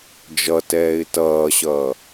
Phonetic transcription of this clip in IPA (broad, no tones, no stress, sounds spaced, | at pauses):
d͡ʒ ʌ t ɛː ɪ̯ t ʌː ɕ ʌː